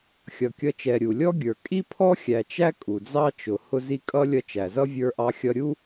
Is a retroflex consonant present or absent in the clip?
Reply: absent